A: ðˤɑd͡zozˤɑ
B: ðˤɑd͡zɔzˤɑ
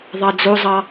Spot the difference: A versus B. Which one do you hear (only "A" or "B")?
A